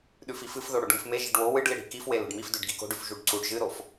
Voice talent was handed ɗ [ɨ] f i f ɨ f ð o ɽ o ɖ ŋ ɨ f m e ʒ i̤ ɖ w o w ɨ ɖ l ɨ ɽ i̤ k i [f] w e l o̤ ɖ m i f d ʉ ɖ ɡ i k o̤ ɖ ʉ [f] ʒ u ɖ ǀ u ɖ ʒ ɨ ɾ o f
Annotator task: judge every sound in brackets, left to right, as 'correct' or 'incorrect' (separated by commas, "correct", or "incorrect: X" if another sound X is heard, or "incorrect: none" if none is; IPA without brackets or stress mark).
incorrect: ʉ, correct, correct